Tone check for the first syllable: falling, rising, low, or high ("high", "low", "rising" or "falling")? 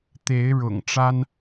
rising